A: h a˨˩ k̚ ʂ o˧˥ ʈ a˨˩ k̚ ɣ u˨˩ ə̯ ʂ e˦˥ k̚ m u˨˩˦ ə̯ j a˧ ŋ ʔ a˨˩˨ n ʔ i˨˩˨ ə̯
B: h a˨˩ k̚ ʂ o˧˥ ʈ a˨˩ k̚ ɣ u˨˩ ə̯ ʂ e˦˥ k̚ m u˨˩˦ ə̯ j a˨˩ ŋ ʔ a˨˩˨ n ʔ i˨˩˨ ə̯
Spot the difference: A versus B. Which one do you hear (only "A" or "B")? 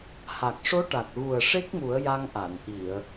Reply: A